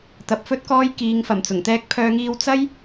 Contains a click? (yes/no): no